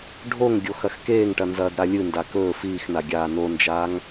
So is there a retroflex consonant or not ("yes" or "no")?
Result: yes